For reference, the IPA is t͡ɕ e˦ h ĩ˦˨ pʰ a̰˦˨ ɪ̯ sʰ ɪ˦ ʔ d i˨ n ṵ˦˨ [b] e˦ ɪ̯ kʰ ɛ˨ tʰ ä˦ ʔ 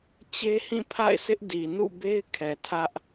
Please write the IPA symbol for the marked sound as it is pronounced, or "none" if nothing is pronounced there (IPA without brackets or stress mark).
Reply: b